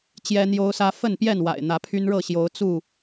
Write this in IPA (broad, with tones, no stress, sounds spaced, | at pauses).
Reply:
t͡ɕ j ɛ˦ n̪ j o˦ ʊ̯ s ä˦ f ə˥˨ n p j ɛ˥˨ n w a̰˨˩ ɪ̯ n̪ ä˨˦ pʰ y˦ n ɻ ɤ˥˨ ɕ j o˨˦ ʊ̯ t͡s u˥˨